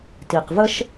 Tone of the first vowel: low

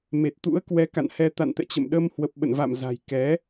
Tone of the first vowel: low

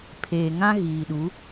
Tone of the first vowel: low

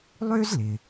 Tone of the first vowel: high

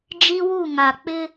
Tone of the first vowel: high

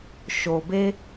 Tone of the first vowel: low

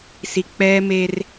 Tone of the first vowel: low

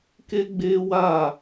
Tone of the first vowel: high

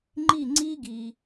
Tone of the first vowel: falling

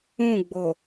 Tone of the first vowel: falling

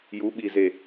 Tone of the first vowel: rising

